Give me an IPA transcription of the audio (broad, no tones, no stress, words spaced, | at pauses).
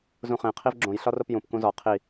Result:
zũχẽ qʰivɡ͡ǁõj ɬɒropjũp kũzɒ qʰi